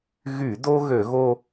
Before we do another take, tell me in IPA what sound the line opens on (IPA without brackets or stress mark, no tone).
ɣ